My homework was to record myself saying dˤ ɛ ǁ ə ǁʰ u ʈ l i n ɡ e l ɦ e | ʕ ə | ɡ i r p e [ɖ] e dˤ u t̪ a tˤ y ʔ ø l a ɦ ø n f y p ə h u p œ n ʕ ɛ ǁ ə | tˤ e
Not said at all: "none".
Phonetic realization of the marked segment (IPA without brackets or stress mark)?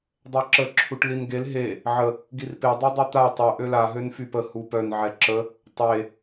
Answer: dˤ